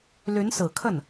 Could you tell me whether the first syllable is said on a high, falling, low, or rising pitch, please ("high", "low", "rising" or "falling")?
rising